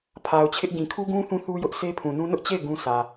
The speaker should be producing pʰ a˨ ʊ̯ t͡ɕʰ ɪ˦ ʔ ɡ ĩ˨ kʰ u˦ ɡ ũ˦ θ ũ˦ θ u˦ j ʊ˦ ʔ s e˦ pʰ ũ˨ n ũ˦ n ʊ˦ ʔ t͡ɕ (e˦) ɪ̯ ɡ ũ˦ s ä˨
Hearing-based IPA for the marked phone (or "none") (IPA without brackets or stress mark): e˦˨